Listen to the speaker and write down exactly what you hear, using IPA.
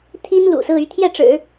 t̪ʰ i˥ n l ṵ˨˩ s ɹ̩˥˧ y˥˧ t̪ʰ j ɛ˥˩ ʈ͡ʂ ɻ̩˨˩˦

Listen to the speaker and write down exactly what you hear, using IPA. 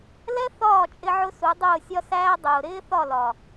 l ɛ˦ θ ɒː˦˨ t͡ʃʼ ɪ˧ ʕ ʊ˧ s u˨˦ dˤ ʊː˦˨ sʲ ɒ˦ s æː˦ dˤ ʊː˨ ɾ ɪː˦ θ ɒ˦˨ l ɒ˨

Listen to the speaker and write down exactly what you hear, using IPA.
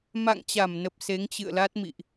m a̰˧˨ ŋ t͡ɕ a˧˩ m n ə˨˩ p̚ s e˨˦ ŋ t͡ɕ ɨ̰˧˨ ə̯ l a˦˥ t̚ m ḭ˧˨ ʔ

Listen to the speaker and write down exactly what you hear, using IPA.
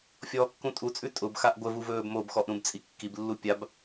fʲ ɔː kː ũ tʼ u t͡sʼ ʉ tʼ ʊ b x a ʔ ɡʷ ə v u v ɵː b m o b x ɔ ʔ ɾ ũ b t͡sʼ i kː i b lː u pʲ a b

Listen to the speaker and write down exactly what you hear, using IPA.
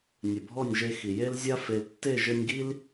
nʲ ɘ˨ bʱ ɔ˦˨ nʲ ʒ e˧ x i˨ j e˦ l zʲ a˦ f e˨ l tː e˦˨ ʒ ɘ˧ nʲ ɡ i˦ l

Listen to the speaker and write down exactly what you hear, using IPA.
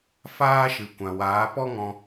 f aː˦ ʃ ɨ˨ kʷ ã˨ w aː˨˦ p ɔ˦ ŋ ɔ̃˧

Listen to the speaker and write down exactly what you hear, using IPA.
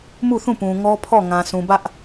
m u˦˨ θ ũ˦˨ p ũ˨ ŋ ɔ˦ pʰ ɔ˦˨ ŋ ã˨ sʰ ũ˨ b ä˦ ʔ

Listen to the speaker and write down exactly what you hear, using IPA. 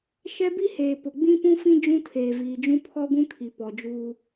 ʃ ɛ˦ b i˦ h eː˨ p ʊ˨ ɡ͡b ĩ˦ p ũ˦ f ĩ˦ d͡ʒ ũ˦ tʰ eː˨ v iː˨ d͡ʒ ũ˦ pʰ ɔ˦ ɡʷ ũ˦ kʰ i˨ p ɔ˨ d͡ʒ uː˦

